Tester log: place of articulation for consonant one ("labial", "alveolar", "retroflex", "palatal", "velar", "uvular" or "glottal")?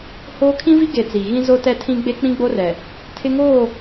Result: glottal